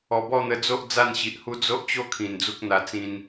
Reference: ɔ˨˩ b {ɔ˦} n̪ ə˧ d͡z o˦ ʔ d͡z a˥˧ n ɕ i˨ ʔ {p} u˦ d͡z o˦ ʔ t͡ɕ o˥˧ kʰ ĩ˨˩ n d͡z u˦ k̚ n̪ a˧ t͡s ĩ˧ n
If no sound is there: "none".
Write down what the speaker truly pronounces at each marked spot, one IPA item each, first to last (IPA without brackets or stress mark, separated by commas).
ɔ˥˧, h